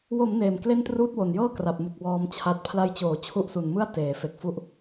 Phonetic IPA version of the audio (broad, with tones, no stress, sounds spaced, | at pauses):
w o˩˦ m n eː˨˩ m k l e˥˩ n t r uː˥˩ t̚ w o˨˩ n j ɤː˥˩ k r a˨˩ p̚ m u˨˩ k̚ w ɔː˧ m t͡ɕʰ a˦˥ t̚ pʰ l a˧ j t͡ɕ oː˩˦ t͡ɕʰ u˦˥ ʔ s u˨˩ n m ɯ˥˩ a̯ t eː˩˦ f e˨˩ k̚ f u˦˥ ʔ